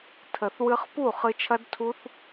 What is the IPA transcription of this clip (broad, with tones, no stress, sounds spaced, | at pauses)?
tʰ ə˨ θ w ɨ˧ χ p u˦˨ χ ɨ˧ t͡ʃʰ ɐ˦ d tʰ u˦ θ